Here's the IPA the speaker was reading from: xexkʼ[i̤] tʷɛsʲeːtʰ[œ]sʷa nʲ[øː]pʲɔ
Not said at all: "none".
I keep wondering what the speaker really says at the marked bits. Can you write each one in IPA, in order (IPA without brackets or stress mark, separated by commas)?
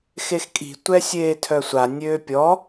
i̤, œ, øː